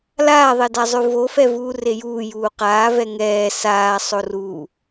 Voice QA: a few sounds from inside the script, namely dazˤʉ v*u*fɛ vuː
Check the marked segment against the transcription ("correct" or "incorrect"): incorrect